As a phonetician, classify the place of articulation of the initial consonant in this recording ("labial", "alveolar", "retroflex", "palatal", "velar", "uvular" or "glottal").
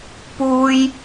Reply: labial